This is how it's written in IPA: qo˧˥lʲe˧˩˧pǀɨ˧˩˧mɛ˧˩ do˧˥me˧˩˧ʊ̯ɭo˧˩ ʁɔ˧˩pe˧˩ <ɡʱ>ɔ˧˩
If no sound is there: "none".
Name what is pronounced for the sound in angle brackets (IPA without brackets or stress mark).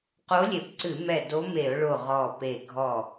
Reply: ɡʱ